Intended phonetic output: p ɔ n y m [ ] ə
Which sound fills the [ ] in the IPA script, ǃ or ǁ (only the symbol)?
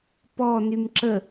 ǁ